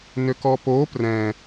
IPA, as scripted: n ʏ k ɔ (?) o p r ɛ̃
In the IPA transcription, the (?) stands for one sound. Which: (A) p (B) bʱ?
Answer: A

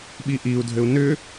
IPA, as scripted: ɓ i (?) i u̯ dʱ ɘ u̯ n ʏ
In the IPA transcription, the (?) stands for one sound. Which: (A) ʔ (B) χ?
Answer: A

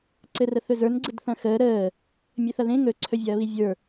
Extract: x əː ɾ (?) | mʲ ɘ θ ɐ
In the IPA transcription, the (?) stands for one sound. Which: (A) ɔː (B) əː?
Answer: B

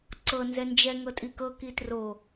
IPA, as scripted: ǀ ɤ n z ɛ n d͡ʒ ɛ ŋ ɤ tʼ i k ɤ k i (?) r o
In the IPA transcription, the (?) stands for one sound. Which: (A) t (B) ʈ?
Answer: A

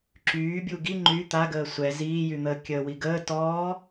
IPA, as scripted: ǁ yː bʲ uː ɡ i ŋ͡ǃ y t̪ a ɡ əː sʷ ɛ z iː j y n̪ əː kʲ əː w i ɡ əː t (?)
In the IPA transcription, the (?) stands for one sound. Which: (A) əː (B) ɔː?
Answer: B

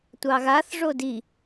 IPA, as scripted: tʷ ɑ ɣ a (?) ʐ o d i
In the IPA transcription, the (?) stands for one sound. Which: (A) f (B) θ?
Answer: B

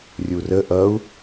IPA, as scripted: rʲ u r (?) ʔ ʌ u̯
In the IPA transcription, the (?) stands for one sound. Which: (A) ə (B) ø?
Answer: A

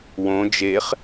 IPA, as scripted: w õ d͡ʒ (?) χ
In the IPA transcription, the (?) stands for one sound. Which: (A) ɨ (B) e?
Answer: B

